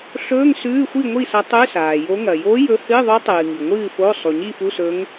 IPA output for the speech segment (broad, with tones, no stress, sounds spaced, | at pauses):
ɬ ɵː˧˥˧ ŋ s ʉː˧˥˧ xʷ i˥˨ ŋʷ i˥˨ s ɐ˧˥ tˤ ʉ˧˥˧ s aː˩ j o˧˥ ŋ ɐ˩ j o˧˥ j ɵ˧˥ h ɨː˧˥˧ ðˤ ʉ˧˥ tˤ ɨː˩ ŋ i˩ ŋʷ ɨː˥˨ f o˧˥˧ sˤ u˩ ɲ i˥˨ f u˧˥˧ s ɵ˧˥ ŋ